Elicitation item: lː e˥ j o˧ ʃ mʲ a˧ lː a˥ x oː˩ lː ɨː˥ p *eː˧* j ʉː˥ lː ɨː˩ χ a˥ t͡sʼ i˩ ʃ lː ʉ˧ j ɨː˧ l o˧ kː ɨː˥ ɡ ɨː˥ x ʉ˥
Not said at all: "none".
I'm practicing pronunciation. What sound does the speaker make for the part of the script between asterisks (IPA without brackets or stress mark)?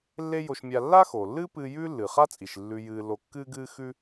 ɨː˧